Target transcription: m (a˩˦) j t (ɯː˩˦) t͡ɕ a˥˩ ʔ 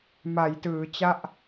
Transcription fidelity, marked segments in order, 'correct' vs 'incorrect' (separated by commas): correct, correct